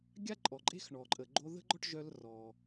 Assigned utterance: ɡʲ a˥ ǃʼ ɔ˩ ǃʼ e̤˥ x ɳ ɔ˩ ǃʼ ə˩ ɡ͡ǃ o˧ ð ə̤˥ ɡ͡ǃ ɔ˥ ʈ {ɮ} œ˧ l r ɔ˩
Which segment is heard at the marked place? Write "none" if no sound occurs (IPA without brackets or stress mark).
ʒ